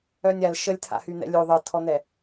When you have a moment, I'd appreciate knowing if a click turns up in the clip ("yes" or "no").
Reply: no